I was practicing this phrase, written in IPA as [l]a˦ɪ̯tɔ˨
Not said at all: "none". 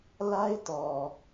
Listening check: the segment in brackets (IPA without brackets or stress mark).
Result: l